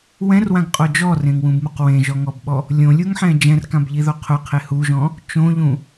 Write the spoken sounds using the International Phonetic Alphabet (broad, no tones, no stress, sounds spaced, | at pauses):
w ɛ̃ r w ã ɡ qʼ o d͡ʒ ɔ r ẽ ŋ w ũ b m u q w ẽ ʒ ɔ ŋ ɔ b ɓ ɔ | lʲ õ lʲ u ŋ ħ ɛ̃ d͡ʒ ɛ̃ r k ã b ʎ i ð o qʰ ʊ qʰ e h u ʒ ɔ̃ | t͡ʃ õ ʎ ũ